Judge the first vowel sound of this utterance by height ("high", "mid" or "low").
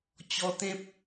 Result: mid